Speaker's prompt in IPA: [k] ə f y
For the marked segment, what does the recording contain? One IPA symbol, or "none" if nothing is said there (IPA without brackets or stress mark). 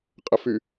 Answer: qʼ